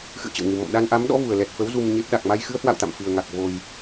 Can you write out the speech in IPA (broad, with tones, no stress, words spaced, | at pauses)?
xɨ̰˧˨ə̯t͡ɕə̰˧˨wŋɨ˨˩mɔ̰˧˨m ɗa˧nʔa˨˦mɗɔ̰˧˥vu˨˩ə̯ lɛ˨˩t̚fə˨˦w zu˧mɲe˦˥p̚ ɗa˨˩k̚ma˧j xɨ˨˦ə̯hwa̰˧˨wt̪a̰˧˨m fɨ˨˩ə̯ŋa˨˩k̚ vo˨˩j